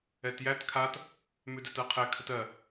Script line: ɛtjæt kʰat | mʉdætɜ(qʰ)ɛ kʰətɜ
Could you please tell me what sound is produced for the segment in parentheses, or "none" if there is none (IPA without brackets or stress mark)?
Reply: qʰ